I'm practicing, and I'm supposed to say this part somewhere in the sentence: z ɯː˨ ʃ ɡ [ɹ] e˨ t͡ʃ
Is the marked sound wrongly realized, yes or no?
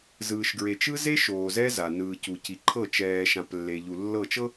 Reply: no